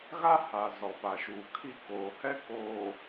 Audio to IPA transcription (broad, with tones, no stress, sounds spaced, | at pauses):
ɣ a˦ h a˨ z ɔ˨ p a˨ ʃ uː˨ kʰ i˦ k oː˨ h ɛ˦ k oː˨